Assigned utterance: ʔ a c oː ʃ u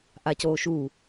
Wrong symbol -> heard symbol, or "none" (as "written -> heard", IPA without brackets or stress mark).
none